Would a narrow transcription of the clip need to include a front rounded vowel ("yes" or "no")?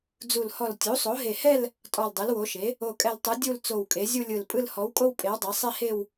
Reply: no